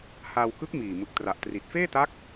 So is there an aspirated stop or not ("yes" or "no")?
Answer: no